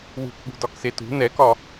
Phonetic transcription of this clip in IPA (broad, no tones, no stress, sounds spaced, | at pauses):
w ṳ k ɠ ṳ d ɒ k s e t ṳ n ɛ k ɒ